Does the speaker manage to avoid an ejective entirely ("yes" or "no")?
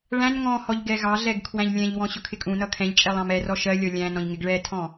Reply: no